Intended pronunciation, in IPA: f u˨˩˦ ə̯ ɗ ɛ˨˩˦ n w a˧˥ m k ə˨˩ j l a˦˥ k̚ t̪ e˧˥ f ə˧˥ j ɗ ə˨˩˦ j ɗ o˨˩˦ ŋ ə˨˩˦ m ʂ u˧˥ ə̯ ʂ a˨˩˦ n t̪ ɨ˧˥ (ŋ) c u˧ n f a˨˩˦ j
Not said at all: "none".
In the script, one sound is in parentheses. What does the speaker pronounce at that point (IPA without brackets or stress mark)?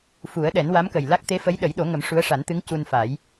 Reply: ŋ